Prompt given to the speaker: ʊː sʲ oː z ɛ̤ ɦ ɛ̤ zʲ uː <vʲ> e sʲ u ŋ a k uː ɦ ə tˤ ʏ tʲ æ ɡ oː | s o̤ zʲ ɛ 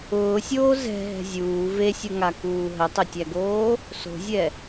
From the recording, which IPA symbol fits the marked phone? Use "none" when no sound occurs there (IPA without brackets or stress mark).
v